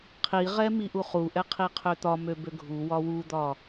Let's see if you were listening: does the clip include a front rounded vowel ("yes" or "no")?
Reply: yes